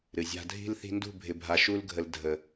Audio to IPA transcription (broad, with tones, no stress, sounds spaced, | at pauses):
ɾ ɨ˨ zʲ a̤˧ dʱ i̤˦ l θ i̤˧ n d ṳ˦˨ bʱ ɪ˨ bʱ a˨ ʃ u˦ l ɡʱ ə˧ l dʱ ə˨